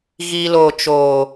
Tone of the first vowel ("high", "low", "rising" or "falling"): low